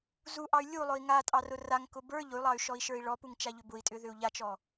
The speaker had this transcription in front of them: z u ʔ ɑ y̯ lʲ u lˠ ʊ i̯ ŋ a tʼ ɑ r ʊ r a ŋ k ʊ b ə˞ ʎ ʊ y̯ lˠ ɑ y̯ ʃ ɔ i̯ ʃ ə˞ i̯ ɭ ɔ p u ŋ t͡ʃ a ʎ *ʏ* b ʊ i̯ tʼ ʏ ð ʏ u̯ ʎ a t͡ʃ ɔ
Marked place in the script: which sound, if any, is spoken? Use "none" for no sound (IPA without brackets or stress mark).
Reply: ʏ